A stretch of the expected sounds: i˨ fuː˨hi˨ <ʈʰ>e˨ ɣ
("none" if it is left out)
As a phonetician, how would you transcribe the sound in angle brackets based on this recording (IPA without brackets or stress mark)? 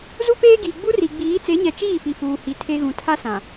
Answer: tʰ